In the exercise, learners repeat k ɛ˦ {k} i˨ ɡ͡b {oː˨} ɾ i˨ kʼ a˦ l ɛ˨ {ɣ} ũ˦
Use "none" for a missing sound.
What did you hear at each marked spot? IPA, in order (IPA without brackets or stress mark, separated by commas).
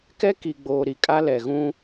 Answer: k, oː˨, ɣ